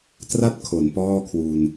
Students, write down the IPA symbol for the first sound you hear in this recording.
t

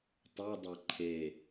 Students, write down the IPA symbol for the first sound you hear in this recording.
tˤ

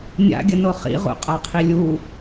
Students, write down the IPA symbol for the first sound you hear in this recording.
nʲ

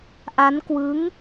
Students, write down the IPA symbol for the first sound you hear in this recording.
ʔ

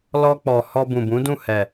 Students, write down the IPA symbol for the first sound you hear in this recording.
l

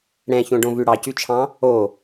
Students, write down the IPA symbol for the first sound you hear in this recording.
ɽ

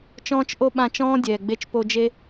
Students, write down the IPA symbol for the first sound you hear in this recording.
t͡ʃ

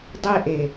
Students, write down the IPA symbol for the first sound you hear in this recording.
dˤ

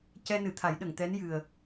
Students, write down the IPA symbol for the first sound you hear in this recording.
c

